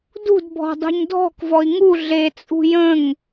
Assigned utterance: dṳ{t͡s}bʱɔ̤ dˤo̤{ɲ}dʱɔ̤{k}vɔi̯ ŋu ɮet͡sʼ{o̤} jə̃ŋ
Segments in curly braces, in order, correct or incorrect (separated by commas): incorrect, correct, correct, incorrect